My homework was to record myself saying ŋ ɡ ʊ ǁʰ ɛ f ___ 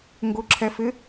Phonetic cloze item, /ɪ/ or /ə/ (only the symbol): ɪ